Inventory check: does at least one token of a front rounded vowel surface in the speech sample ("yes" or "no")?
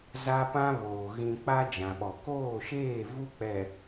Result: no